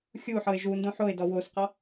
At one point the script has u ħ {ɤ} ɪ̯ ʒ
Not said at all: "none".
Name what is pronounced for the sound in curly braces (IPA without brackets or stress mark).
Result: ɤ